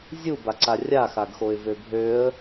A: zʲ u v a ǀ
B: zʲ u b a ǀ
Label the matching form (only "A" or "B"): B